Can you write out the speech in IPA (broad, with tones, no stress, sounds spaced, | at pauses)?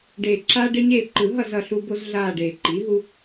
ɖ eː˨˩ ǁ aː˦ ɖ e˦ ɲ eː˦˨ ǃ ɯ˨˩˦ ɦ ʌ˦˨ z ʌ˦˨ ɬ u˦ b o˦ z ɮ aː˦˨ ɖ eː˨˩ ǃ i˩˥ ɦ u˦